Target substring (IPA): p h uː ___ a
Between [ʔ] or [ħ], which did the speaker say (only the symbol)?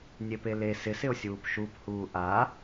ʔ